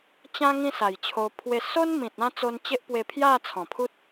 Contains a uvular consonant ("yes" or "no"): no